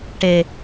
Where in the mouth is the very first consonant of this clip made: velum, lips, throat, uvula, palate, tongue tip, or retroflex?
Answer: retroflex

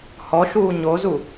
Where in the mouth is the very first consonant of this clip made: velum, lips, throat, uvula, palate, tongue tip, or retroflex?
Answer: throat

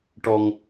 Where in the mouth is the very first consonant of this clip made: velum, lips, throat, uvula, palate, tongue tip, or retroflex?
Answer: retroflex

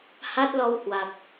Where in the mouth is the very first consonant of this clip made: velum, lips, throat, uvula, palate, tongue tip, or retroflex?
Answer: throat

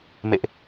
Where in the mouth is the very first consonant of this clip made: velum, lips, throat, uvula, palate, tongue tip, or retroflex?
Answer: lips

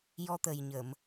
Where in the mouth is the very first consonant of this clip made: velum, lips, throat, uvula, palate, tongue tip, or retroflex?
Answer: palate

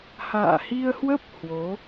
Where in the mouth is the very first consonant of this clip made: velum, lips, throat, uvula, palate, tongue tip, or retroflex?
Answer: throat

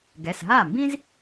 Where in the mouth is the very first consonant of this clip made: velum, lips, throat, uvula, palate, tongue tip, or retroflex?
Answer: velum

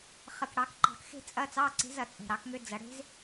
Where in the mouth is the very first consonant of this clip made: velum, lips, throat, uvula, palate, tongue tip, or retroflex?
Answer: uvula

